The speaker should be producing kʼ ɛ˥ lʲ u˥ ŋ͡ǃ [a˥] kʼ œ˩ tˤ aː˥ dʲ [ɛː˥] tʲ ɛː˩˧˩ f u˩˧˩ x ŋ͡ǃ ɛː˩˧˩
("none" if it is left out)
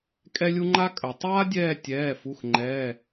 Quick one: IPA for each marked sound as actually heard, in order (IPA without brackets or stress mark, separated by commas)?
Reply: a˥, ɛː˦˨